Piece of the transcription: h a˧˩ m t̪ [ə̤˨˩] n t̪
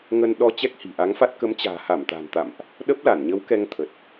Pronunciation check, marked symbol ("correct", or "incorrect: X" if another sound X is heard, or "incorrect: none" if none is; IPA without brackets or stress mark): incorrect: a̤˨˩